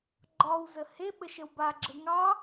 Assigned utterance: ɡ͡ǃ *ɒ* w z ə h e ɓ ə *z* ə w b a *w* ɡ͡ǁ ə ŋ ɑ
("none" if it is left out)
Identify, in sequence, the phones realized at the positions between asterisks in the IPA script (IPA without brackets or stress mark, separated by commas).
ɒ, ʃ, none